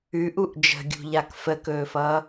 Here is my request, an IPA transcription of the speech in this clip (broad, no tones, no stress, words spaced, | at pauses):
ʉʔuʔ d͡ʒə̤ɡʲṳʎak fəkɵːfʌː